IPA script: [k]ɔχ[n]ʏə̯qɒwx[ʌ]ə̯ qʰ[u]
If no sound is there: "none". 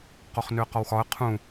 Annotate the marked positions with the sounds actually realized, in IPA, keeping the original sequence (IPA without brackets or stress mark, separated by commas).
q, n, ɒ, ũ